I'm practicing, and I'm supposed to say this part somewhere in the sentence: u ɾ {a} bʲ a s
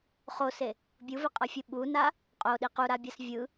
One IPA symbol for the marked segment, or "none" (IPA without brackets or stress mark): a